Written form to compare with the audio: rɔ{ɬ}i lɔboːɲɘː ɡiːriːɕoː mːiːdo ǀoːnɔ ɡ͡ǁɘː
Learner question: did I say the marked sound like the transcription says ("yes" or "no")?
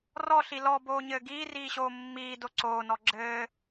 yes